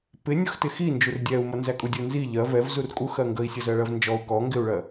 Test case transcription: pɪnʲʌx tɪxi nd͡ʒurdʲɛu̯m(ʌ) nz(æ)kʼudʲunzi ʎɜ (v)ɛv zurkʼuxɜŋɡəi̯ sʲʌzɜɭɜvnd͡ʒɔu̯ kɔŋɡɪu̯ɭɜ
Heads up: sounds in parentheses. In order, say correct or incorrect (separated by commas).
correct, correct, correct